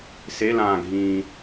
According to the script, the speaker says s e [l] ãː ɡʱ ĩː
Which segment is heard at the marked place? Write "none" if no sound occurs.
l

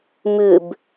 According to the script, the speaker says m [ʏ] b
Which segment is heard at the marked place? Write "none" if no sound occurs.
ʏ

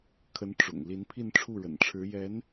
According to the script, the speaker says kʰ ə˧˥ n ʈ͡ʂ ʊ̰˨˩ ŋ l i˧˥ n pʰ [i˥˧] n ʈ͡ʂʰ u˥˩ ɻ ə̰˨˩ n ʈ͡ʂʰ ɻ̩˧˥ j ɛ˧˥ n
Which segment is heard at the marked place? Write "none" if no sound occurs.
i˥˧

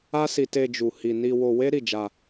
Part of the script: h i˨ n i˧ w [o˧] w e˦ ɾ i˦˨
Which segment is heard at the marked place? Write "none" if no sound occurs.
o˧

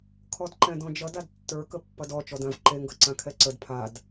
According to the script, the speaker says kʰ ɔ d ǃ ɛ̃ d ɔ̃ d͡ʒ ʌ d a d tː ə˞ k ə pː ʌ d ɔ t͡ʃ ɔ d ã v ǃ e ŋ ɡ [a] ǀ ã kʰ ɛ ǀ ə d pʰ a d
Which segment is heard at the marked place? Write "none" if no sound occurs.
ʌ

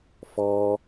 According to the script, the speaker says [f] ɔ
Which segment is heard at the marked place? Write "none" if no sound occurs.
f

